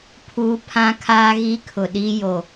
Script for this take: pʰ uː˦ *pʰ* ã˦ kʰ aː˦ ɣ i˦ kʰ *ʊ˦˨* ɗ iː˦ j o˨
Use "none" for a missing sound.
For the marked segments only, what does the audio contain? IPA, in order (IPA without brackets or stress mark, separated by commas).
pʰ, ʊ˨